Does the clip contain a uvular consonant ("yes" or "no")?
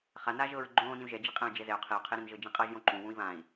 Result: yes